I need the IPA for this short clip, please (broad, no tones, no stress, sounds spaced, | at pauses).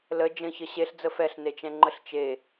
l ə d͡ʒ ə̃ ç ə ɕ e ɬ d͡z ə f ɛ ɬ n e t͡ʃ ɛ̃ ŋ͡ǃ ə ɬ t͡ʃ e